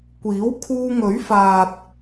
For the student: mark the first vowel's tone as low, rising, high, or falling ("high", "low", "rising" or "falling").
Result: rising